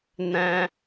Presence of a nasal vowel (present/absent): present